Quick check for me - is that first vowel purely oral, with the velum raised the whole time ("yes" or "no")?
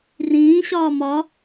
no